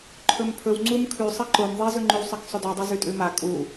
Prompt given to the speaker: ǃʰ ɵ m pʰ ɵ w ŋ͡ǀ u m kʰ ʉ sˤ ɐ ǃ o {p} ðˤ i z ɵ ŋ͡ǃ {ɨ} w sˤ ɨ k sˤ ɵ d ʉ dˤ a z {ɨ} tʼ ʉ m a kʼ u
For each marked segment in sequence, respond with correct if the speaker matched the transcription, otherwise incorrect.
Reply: incorrect, incorrect, incorrect

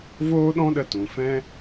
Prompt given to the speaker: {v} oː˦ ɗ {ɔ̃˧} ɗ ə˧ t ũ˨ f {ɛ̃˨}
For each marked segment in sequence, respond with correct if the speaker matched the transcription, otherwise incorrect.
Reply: correct, incorrect, incorrect

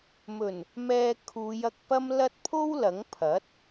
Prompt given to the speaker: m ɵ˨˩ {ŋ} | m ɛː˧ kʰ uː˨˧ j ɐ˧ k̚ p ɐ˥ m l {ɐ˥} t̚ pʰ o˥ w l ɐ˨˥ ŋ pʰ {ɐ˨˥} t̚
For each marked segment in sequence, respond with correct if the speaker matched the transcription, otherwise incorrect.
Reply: incorrect, correct, correct

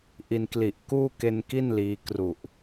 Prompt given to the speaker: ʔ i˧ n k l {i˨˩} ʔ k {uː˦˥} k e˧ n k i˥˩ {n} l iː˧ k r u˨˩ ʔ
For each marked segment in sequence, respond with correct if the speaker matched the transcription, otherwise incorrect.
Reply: correct, incorrect, correct

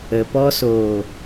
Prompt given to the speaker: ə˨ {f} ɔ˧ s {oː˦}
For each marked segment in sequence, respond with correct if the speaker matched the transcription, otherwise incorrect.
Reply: incorrect, incorrect

